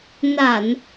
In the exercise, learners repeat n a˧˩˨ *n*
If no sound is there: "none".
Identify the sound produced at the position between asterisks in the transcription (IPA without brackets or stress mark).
n